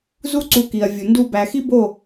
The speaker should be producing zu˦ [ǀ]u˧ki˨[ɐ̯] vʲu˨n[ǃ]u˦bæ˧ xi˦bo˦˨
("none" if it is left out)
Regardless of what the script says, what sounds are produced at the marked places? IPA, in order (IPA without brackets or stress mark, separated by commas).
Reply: ǀ, ɐ̯, d